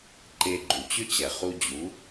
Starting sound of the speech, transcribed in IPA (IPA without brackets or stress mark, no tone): ǃ